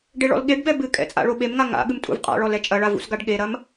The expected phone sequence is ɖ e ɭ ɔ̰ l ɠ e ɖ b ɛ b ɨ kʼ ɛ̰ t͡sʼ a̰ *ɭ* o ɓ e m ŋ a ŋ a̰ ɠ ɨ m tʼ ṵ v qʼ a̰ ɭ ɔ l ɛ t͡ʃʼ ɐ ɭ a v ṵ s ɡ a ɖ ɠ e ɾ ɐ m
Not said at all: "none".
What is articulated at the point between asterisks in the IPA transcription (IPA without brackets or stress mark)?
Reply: ɭ